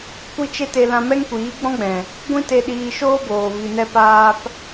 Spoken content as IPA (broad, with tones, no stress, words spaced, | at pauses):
kʷi˦t͡ʃe˦ te˧ lã˧mɛ˦ŋkʷiː˨˦ ɡ͡bɔ̃˦ɡ͡bɛ̃˨ | ɡʷĩ˦te˧ɗiː˧ ʃoː˦boː˨ vi˧nɛ˦paː˦p